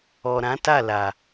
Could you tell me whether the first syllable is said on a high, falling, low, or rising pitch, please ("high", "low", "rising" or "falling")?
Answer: low